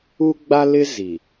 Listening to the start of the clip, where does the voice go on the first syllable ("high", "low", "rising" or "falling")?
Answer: high